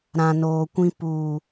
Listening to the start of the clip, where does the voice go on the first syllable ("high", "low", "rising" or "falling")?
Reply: low